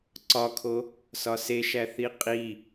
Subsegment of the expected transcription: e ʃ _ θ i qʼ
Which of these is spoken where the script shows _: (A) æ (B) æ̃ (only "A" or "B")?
A